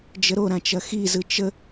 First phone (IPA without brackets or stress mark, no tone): d͡ʒ